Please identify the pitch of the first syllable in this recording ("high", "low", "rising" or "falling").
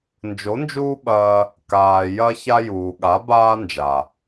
rising